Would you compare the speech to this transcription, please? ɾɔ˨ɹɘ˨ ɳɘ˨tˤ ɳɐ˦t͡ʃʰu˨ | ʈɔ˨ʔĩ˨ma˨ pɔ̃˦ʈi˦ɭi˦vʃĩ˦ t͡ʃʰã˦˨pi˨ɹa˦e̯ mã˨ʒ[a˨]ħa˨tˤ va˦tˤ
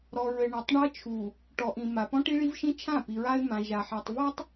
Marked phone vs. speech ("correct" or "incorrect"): correct